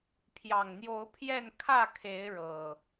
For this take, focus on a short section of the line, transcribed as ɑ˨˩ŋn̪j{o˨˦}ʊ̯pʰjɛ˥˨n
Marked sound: correct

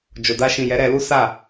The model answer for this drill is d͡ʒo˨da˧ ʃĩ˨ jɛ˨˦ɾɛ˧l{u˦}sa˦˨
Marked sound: correct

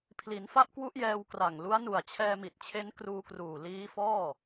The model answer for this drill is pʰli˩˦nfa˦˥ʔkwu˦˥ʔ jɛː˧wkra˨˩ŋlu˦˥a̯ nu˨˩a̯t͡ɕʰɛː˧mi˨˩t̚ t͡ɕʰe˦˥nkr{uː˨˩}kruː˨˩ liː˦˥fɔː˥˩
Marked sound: incorrect: uː˧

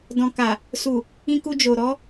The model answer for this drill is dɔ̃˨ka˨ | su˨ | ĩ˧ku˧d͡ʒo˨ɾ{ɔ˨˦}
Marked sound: correct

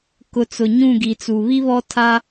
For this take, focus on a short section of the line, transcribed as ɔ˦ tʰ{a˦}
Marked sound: correct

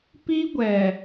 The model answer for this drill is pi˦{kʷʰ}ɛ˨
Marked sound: incorrect: ɡʷ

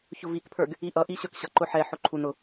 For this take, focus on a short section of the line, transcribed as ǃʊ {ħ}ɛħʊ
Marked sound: correct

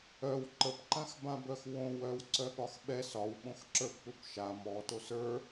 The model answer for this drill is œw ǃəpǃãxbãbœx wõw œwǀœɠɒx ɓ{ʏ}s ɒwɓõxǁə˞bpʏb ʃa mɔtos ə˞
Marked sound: incorrect: ɛ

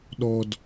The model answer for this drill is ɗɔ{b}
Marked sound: incorrect: d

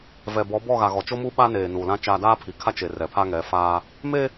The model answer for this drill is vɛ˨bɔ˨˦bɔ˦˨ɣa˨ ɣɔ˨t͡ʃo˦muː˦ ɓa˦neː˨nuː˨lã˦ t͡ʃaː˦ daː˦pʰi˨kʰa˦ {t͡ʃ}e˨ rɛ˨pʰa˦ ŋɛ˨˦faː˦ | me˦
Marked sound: correct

